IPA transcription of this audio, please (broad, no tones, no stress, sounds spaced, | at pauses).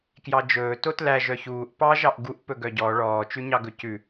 k j ɑ d͡ʒ ɵː t o t l æ ʒ œ ç uː ʔ p ɑ ʒ ɑ ʔ ɡ u ʔ p ɵ ɡ œ ɟ ɔ ɭ ɔː t͡ʃ ʉ ɲ ɑ ɡ ɵ c ʉ